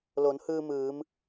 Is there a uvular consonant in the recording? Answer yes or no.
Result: no